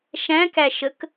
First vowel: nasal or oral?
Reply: nasal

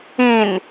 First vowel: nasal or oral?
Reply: nasal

